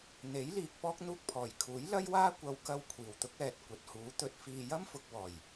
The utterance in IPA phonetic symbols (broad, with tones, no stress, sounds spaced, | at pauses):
n̪ e˨˥ j l iː˨ k̚ p ɔː˥ k̚ n̪ uː˧ k̚ pʰ ɔː˨˩ j kʰ uː˨˥ j l ɐ˥ j w aː˥ kʷ ɐ˧ w k ɐ˥ w kʷʰ iː˨˩ w t̪ ʊ˥ k̚ ɛː˨ t̚ kʷ ɐ˨ t̚ h uː˨˥ t̪ ɵ˧ t̚ f iː˧ j ɐ˥ m f ʊ˨ k̚ w ɔː˨˩ j